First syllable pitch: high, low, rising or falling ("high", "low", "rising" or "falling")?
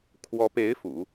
rising